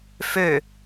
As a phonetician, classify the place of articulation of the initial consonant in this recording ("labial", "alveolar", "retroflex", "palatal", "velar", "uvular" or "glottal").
labial